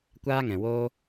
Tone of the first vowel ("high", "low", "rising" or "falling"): high